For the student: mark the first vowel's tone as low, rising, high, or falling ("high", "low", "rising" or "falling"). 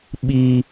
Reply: high